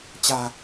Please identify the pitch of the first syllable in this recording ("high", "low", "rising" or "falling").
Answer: low